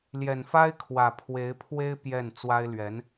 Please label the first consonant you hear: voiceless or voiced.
voiced